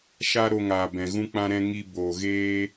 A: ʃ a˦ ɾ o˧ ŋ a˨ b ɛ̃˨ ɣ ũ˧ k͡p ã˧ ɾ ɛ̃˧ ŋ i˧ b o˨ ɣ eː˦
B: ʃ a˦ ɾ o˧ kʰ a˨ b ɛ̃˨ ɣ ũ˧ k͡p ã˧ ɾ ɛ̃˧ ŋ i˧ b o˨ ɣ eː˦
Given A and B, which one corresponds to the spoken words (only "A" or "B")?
A